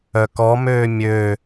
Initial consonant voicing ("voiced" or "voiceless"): voiceless